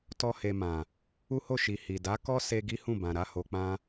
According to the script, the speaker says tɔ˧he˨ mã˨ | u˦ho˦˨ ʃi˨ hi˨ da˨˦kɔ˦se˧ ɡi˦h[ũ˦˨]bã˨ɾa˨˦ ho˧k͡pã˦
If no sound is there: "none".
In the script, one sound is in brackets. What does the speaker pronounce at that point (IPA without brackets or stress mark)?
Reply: ũ˦˨